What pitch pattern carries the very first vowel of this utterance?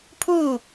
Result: falling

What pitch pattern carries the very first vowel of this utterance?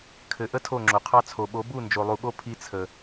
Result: low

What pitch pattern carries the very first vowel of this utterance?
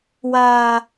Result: high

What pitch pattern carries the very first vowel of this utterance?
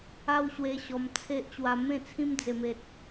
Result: high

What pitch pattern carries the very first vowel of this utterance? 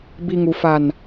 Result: low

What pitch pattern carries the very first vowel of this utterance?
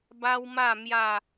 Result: high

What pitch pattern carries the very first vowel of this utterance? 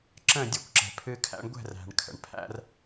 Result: falling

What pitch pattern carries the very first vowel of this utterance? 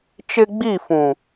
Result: high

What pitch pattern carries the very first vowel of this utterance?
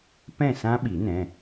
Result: falling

